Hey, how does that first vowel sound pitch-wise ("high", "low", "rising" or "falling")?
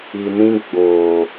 low